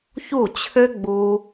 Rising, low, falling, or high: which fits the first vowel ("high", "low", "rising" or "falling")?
falling